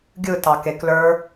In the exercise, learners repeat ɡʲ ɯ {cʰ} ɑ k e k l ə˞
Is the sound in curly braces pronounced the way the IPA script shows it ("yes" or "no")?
no